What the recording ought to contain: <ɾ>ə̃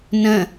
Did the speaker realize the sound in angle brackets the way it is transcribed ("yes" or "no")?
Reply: no